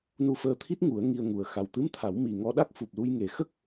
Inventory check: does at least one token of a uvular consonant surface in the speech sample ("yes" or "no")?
no